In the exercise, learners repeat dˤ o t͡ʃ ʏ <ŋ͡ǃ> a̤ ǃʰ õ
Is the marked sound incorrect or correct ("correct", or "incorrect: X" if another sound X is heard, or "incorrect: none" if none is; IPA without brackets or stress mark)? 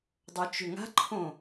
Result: incorrect: ŋ